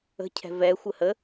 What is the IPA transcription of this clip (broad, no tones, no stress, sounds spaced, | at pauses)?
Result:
ə̤ cʰ ɛ̤ v ɛ xʷ ə h ə